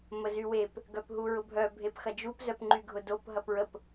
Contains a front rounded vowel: yes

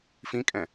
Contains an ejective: yes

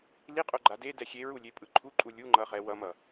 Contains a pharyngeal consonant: no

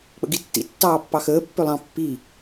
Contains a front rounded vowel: yes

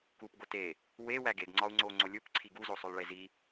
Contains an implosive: no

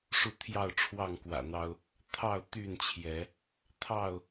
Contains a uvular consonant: no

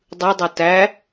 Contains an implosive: no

